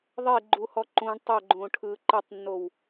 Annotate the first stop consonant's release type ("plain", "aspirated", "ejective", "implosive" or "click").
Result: click